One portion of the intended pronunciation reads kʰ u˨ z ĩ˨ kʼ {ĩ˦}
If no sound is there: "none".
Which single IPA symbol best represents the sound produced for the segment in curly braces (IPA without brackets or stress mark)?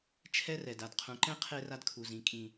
ĩ˨